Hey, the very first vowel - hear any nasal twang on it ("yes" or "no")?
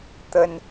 no